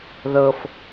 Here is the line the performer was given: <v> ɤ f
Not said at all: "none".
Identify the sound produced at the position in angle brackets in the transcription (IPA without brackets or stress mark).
ð